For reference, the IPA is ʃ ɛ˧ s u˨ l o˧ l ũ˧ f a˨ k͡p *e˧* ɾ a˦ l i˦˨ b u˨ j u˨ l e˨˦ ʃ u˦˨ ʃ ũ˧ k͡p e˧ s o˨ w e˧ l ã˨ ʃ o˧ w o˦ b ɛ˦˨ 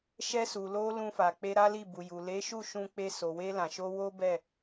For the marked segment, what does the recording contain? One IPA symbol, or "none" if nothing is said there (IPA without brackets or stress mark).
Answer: e˧